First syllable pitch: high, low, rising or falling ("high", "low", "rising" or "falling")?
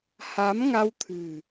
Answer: rising